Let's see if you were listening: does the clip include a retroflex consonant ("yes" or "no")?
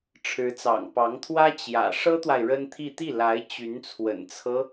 yes